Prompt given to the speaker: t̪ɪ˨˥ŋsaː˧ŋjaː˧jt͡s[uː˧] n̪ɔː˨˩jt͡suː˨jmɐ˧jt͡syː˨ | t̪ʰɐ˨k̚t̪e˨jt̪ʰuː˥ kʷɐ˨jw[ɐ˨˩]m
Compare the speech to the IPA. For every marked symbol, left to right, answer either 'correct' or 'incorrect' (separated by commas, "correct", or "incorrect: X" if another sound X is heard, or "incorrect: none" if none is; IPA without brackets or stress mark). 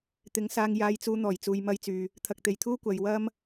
correct, incorrect: ɐ˥